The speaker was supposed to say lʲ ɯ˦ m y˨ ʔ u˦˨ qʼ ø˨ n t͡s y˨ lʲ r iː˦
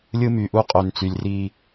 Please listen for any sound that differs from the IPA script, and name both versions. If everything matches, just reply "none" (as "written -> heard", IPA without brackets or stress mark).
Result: none